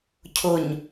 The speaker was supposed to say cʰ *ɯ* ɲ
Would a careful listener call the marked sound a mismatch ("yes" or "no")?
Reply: yes